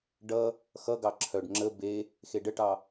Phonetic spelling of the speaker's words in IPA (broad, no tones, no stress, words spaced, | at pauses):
ɖʌ | xʌɡɑ ǁʰœɖ ŋ͡ǁə be | xeɖəʈɑ